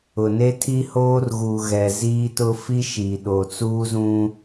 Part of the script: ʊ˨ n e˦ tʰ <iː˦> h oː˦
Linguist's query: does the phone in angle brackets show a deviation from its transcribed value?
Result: yes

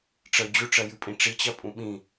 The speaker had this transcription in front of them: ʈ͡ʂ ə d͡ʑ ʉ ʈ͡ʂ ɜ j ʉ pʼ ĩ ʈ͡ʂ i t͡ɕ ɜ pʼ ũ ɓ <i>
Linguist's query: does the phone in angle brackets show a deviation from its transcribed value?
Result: yes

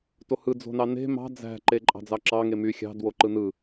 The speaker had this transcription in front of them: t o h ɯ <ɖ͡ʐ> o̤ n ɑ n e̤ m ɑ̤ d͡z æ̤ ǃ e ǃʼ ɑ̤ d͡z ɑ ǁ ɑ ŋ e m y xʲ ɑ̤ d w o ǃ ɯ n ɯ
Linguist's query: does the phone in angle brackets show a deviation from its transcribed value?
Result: yes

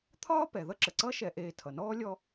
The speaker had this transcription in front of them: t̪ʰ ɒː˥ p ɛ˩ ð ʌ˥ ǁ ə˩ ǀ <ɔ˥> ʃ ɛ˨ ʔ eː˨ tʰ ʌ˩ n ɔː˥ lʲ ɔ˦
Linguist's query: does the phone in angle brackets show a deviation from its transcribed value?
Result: yes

